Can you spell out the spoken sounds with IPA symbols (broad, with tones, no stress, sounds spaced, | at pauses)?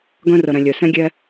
ɡ œ̃˦ r ə˨ ɾ ɛ̃˨ lʲ œ˨ s ɛ̃˦ ɡʲ ɛ˦